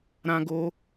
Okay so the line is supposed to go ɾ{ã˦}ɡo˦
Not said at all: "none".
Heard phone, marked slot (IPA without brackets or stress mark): ã˦